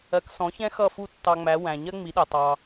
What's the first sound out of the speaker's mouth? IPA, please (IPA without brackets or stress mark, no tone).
ɜ